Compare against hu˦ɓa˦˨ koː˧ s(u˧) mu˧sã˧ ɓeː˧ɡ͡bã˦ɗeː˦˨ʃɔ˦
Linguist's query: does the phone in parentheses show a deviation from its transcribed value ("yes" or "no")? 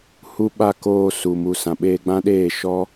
yes